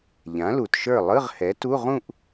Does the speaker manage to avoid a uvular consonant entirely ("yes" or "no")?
no